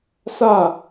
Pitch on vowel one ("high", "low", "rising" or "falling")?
falling